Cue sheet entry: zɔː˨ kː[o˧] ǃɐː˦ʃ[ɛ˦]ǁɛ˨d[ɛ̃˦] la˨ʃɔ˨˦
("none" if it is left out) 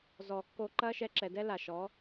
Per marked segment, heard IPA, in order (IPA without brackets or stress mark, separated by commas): o˧, ɛ˧, ɛ˦